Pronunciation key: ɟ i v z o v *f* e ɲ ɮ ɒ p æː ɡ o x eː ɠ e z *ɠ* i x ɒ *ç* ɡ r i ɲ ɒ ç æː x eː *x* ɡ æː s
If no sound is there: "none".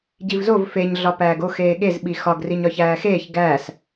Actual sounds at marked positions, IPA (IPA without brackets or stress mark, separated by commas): f, ɓ, none, ç